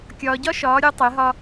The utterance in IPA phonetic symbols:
kʲɒː˨ɟɒ˦ ʃɒː˨˦ɾʲu˨˦ tˤe˨˦ɦɒ˦

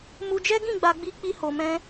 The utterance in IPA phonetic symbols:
mu˧ d͡ʒɛ˦ɡĩ˦˨ɡ͡ba˧ɡ͡bi˧ k͡pi˦ho˧mɛ̃˦

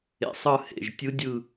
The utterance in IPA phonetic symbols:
ḛ˨˩sˤɯ˦˨hḛ˨˩ʒ tʲɯ˧˥dʲɯ˦˨

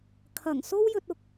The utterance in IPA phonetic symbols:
kʰɐ˨˩ŋso˥w jɵ˧t̚ʊ˧k̚

